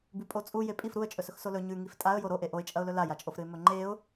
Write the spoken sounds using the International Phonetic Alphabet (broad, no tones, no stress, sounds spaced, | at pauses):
b ʉ pʼ o t͡sʼ u j e pʼ i f ɾ u ə̯ t͡ʃʼ ɵ s ɵ x s o l ɵ ɲ ʉ ŋ i f tʼ a ə̯ j o ɾ o ʔ e ʔ o ɪ̯ t͡ʃʼ ɐ ʊ̯ l ɵ l a j a t͡ʃʼ o f ɾ ɨ ɪ̯ m ɵ ŋ͡ǃ e ʊ̯